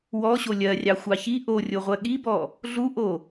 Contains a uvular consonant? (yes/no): yes